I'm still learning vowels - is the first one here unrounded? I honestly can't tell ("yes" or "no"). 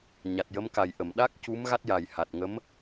yes